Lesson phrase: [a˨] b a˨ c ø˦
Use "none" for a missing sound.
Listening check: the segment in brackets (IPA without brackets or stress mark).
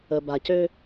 ə˨